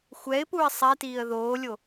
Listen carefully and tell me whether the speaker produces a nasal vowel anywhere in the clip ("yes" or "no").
no